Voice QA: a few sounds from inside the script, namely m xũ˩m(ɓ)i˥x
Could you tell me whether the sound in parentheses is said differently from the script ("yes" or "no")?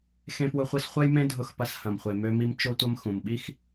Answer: no